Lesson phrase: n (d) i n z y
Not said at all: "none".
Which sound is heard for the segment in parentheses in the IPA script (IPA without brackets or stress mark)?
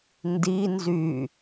d